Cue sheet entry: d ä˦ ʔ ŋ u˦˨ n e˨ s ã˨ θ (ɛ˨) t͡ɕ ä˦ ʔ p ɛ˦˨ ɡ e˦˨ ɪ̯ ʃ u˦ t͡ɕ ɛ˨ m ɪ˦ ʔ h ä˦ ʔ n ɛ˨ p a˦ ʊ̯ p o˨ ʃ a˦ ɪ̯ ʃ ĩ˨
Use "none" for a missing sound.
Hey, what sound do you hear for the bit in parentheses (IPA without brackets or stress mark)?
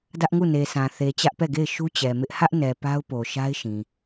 e˨